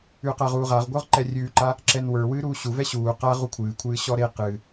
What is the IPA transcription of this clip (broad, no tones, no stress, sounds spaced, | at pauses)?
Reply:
ʉ q a ʁ uː ʁ a ʁ ɡʷ ə˞ ʁ ǃ ɛ rʲ ʉː ǃ a | ǁ ɛ n w ə˞ w ɨː ɾ uː ɕ u v ɛ ɕ uː q a ʁ u kʷʰ ɨː kʷʰ ɨː ɕ ɔ ɾ e q ɨ